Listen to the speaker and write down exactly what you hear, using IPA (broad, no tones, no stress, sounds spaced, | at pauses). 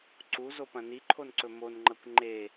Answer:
ǀ u z o p ɐ̃ n i ǃʰ o n ǀ ɵ m o n ŋ͡ǃ ɐ kʷ ŋ͡ǃ e